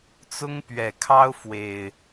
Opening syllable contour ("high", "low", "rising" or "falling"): high